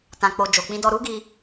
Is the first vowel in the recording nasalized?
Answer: yes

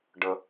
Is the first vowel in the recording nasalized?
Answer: no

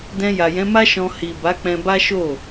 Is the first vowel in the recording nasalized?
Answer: yes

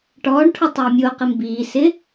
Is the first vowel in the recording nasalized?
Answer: no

